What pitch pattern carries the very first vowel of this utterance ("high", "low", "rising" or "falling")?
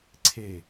falling